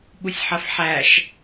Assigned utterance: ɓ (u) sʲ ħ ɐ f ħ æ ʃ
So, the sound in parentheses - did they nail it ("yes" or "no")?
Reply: yes